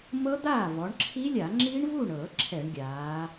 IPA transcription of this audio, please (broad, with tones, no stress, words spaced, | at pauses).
mɤ˦˥d̪aː˥˩ vɔ˩˧ɳǁʰi˦˥lʲa˧˩˧ ŋ͡ǁi˦˥ɳvu˥˩ɳ ɤ˧˩˧ ǁʰɛ˧˩˧ɳɡʲaː˩˧